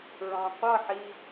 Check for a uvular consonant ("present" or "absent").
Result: present